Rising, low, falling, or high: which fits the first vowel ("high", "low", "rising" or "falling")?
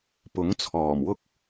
rising